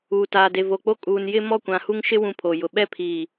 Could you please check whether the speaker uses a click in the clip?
no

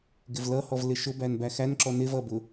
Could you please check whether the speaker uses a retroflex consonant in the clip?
no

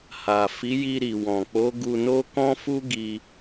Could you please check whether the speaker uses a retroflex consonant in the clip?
no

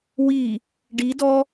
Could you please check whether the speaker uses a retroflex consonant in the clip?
yes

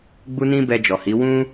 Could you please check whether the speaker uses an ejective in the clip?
no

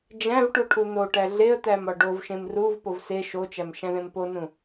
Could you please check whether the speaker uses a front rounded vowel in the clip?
no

